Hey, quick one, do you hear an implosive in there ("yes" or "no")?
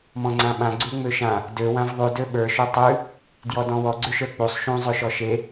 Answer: yes